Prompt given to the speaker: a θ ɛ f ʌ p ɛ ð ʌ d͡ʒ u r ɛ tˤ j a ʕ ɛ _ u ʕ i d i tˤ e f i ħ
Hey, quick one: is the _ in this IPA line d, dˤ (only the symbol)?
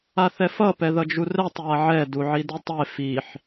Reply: d